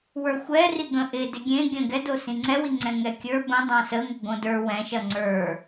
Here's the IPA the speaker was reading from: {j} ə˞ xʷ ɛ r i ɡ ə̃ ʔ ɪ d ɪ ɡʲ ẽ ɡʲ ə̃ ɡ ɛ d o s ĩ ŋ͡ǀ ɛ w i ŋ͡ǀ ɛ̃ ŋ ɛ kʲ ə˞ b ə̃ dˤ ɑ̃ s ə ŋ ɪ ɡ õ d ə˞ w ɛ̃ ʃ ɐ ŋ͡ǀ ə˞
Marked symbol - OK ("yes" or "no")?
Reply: no